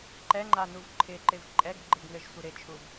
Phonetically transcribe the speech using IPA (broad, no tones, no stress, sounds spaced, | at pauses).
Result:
ǃ ɛ ŋ͡ǃ a n u v ǃʰ ɪ ǃ ɪ v ǃʼ ɛ ɡ ɡ͡ǃ ɪ ɡ ŋ ɘ ʒ sʷ ɪ ɾ ɪ t͡ʃʰ u v